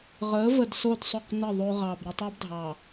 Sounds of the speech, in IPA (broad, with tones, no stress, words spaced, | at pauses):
ʁə˨˦və˨d so˦˨dsˤo˦˨q nɘ˦˨ ðˤo˦ ʁɑ˨b ɾə˦tˤɛ˦b dʱɑ˨